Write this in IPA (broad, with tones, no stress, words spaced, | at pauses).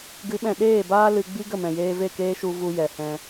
ɡɨ˨˦ɓɛ̃˨ ɗeː˦˨baː˦ lɨ˧ ɡ͡bi˦ɡə˦˨mɛ̃˨ jeː˧ve˦˨keː˦ʃu˧ vu˧ jɛ˨hɛ̃˧